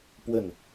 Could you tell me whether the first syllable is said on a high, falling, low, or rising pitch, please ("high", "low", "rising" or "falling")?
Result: falling